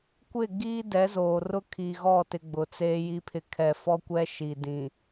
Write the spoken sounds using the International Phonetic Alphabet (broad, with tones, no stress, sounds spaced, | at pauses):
kʷ ɪ˦˨ ɡ iː˦ d ɛ˨˦ z oː˨ r ʊ˦ kʰ i˨ ɣ ɔ˦˨ t ɪ˨ ɡ͡b ʊ˨ t͡s eː˦ j i˦ pʰ ɪ˦ kʰ ɛ˨ f ɔ˦ kʷ ɛ˦ ʃ i˨ d ĩ˨